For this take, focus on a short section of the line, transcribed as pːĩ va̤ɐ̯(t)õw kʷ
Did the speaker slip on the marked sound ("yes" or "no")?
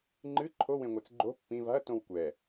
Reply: no